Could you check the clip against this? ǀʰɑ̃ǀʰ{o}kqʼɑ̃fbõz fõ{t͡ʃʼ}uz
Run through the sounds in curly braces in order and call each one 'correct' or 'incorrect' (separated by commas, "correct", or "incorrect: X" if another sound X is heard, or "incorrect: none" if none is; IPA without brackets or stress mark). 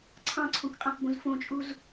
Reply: incorrect: õ, correct